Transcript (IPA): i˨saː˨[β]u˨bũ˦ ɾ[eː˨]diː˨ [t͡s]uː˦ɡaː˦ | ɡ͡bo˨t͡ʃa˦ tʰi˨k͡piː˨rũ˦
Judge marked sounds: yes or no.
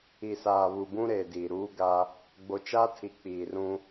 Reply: yes, yes, no

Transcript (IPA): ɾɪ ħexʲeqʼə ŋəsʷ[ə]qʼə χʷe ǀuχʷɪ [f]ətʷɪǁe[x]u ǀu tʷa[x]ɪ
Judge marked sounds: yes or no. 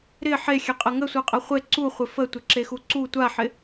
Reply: no, yes, yes, no

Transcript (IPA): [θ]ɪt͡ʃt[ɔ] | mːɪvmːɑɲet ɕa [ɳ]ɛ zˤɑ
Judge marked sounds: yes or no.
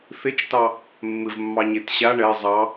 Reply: yes, no, yes

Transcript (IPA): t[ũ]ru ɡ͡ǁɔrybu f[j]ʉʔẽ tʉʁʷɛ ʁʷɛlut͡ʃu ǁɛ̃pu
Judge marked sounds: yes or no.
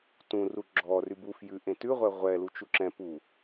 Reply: yes, yes

